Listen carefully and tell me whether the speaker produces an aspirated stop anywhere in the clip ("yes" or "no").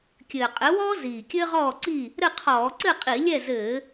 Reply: yes